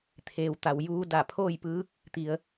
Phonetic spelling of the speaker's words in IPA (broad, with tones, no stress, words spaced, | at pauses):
t̪ʰeː˩wt̪a˩w juː˧da˧˩pʰoː˥˨jpɯː˧˥k̚ | t̪i˩˧ə̯